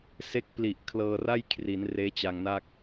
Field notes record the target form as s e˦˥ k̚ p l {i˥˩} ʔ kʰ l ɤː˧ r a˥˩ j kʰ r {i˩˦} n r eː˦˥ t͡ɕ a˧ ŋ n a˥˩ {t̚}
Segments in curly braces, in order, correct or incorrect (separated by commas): incorrect, correct, incorrect